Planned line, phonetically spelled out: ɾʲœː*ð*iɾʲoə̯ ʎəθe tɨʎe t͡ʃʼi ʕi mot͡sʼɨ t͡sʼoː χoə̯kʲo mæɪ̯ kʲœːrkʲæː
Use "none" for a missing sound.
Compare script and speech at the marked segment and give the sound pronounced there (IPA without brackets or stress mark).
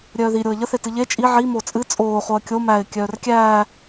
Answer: ð